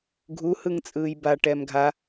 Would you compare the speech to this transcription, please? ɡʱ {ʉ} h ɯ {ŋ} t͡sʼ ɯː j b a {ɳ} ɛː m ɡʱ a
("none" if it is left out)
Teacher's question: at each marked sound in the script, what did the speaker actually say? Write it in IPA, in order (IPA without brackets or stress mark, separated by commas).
u, ŋ, ʈ